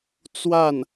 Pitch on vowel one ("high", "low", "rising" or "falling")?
falling